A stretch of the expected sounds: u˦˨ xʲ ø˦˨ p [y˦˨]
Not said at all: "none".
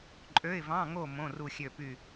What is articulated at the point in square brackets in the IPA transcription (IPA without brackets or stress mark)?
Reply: y˦˨